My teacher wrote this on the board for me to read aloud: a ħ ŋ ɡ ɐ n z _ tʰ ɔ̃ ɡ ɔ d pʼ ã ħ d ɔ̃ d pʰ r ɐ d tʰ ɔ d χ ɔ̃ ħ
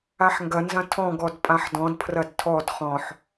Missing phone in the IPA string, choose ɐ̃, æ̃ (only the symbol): ɐ̃